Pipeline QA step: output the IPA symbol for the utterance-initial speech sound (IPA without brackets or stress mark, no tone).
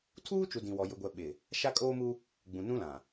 tʰ